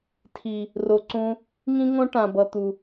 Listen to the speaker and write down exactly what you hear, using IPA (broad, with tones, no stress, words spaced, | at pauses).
tʰi˨ | ro˨ǀũ˧ | ŋĩ˦ŋõ˦ ʈã˨bʌ˨ t̪u˨